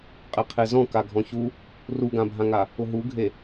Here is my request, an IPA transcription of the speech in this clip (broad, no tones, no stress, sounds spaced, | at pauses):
qʼ e qʰ e z ɔ̃ k a ɡʱ ɔ̃ ç u | r u ɡ ã bʱ ã ŋ a | ʊ ɦ u ɡʱ e